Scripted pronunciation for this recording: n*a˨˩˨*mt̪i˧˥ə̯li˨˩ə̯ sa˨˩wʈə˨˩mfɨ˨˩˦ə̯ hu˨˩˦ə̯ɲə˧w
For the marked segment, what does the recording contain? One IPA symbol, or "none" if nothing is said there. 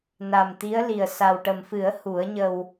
a˨˩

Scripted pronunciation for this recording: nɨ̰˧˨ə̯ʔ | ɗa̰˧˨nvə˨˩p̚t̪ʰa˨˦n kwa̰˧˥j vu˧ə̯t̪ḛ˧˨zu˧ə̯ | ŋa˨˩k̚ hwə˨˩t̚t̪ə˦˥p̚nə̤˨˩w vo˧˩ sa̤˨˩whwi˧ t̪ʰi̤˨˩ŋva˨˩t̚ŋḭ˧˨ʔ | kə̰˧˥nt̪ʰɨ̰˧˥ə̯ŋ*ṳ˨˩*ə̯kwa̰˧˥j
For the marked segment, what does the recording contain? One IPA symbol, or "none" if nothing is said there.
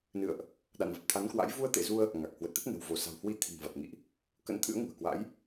ṳ˨˩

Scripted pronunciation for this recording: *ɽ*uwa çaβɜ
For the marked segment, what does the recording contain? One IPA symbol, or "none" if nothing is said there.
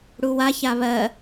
ɽ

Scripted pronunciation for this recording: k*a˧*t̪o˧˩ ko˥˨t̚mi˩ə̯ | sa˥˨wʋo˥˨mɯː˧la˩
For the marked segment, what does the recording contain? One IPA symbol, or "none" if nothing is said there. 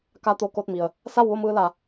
a˧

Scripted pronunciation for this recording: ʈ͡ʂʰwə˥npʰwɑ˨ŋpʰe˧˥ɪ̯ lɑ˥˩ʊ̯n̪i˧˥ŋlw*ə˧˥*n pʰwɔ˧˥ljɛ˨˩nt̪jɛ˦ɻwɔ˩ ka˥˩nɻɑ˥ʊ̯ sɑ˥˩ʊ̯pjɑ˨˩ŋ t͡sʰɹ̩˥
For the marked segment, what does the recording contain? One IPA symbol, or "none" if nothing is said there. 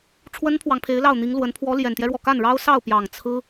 ə˧˥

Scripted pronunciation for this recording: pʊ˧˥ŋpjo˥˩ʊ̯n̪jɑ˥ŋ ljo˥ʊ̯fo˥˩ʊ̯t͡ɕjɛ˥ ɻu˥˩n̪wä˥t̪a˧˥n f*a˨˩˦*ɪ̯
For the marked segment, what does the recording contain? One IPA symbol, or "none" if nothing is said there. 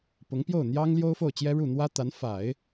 a˨˩˦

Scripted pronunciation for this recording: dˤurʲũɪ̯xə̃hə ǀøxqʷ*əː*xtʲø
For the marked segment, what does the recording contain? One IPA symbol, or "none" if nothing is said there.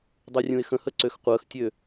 əː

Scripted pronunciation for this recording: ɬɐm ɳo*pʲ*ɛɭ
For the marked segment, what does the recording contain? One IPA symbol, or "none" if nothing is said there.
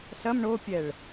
pʲ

